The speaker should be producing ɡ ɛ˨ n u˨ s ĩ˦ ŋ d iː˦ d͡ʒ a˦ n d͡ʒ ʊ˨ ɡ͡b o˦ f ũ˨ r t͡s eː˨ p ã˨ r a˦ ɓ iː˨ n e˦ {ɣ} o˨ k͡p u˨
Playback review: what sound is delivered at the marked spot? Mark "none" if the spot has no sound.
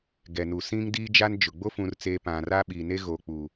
ɣ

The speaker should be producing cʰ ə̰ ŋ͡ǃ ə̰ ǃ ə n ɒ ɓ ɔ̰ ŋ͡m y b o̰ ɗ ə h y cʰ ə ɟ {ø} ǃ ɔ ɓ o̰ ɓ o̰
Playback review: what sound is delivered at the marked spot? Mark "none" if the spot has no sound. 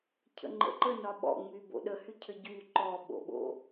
y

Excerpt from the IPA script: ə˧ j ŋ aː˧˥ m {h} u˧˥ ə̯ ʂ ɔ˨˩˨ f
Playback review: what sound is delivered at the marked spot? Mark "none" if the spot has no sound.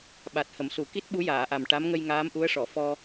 ʔ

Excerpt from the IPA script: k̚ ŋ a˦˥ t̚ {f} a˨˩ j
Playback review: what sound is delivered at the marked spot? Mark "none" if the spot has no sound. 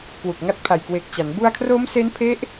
pʰ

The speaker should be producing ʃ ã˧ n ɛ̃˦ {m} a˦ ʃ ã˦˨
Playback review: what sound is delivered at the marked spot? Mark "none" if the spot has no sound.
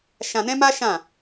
m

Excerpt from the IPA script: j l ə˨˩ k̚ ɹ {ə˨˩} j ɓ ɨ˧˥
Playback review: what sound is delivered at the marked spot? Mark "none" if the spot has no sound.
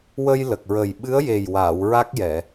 ə˨˩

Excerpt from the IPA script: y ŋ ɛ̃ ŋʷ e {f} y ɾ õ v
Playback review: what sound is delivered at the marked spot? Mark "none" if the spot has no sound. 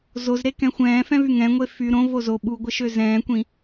f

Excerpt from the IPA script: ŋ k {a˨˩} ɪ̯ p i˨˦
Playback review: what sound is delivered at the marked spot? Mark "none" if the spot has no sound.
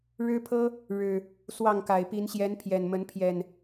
a˨˩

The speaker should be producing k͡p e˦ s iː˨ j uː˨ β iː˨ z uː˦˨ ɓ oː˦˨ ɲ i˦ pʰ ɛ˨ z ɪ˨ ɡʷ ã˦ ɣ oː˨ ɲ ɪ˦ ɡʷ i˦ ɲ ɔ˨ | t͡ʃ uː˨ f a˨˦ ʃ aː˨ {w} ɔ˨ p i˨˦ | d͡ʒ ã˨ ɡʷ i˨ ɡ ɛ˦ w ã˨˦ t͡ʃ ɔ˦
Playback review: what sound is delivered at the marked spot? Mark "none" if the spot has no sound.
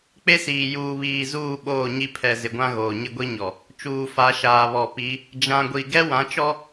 β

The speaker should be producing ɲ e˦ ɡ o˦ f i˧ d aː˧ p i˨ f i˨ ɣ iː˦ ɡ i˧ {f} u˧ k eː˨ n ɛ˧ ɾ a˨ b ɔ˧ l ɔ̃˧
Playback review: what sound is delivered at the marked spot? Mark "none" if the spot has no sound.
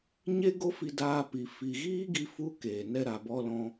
f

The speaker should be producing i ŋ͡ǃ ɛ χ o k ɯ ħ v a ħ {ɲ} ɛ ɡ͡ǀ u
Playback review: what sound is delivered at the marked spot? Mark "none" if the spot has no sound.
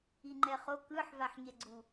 ɲ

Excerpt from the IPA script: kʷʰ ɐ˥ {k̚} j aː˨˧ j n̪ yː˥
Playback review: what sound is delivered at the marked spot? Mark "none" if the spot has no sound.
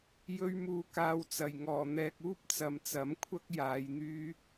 k̚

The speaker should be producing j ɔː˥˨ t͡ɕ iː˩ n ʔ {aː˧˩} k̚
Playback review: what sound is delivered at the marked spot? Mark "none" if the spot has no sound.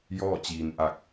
a˧˩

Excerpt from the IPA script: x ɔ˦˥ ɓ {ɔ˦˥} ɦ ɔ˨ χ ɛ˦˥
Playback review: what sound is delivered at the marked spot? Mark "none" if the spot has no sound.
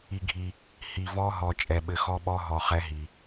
ɔ˦˥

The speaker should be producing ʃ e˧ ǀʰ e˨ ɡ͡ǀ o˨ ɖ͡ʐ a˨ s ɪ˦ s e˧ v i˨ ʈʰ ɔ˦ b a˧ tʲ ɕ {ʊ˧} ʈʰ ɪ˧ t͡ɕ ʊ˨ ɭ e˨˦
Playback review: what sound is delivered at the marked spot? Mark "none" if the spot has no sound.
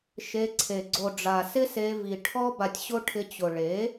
ʊ˦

